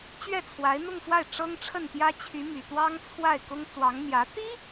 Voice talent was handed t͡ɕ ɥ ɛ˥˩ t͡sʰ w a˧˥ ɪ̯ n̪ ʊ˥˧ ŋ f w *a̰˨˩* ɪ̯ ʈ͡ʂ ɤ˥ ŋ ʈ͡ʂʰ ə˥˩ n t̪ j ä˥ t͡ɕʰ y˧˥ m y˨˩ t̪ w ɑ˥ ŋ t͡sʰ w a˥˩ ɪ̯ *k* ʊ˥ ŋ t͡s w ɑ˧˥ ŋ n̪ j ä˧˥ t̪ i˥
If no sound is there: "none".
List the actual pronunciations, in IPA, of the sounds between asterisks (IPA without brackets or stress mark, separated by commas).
a˥˩, k